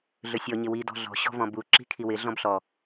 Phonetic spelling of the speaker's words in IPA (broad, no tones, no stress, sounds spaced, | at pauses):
ɮ ɵ sʲ ɔ ɲ ɪ w i d ɔ̤ ɮ ɔ̤ ɕ ɔ̤ v ɔ̃ b u ǁ i̤ kʰ i w ɪ ɮ ɔ̃ b ɬ ɔ